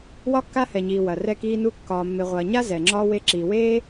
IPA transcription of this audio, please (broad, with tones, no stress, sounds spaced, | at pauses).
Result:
w ɒ˦ kː a˦ h ɛ˨ ɲ iː˨ w ɐ˨ r ɛ˧ k iː˧ n u˧ kː ɒː˨ mː ɪ˨ ʁʷ ɐː˨ ɲ a˦ z ɛ˨ ŋ͡ǁ ɒː˦ w e˧ ǁ iː˨ w eː˦